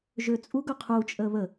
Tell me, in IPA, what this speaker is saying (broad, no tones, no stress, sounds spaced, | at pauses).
ʒ ø t͡sʼ u ɡ ɵ qʰ u t͡ʃʼ ə β ə